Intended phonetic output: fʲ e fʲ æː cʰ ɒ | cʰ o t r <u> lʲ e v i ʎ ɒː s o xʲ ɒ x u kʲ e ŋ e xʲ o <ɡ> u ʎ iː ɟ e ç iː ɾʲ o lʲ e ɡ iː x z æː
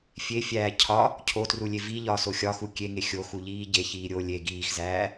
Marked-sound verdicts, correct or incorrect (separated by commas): correct, incorrect